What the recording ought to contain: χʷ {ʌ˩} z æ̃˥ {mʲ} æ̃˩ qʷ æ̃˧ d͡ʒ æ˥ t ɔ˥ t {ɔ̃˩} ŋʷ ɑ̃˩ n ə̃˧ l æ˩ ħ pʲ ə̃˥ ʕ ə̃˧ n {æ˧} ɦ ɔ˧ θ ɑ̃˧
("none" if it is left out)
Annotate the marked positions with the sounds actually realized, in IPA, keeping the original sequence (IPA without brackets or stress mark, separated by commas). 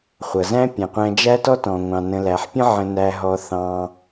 ʌ˩, pʲ, ɔ̃˩, æ˧